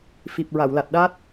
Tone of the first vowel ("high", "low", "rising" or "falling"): low